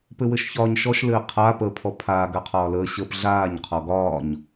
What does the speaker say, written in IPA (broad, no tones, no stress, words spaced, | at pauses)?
pɘwɘʃçɒːɲʃɔʃ lɘːqʰaː pəːpʰɔpʰaː ɡaqʰɒːləː ɕəːpɮaːɲ qʰɔɡɒːɲ